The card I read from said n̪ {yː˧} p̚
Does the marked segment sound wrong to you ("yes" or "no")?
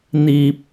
yes